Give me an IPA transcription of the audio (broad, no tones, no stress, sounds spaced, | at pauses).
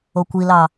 o kʷ i l ɑ